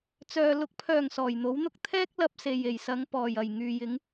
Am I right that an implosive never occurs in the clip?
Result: yes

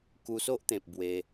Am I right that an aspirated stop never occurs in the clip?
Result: yes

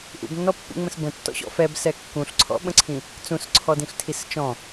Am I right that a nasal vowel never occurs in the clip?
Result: no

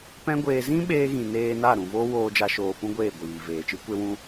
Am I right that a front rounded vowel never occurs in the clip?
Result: yes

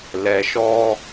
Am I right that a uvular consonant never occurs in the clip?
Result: yes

